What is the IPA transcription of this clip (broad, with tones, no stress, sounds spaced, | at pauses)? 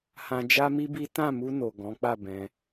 h ã˧ d͡ʒ a˦ m i˦ b i˦ t ã˦˨ m u˧ n o˨ ɡ ɔ̃˨˦ k͡p a˦˨ b ɛ̃˧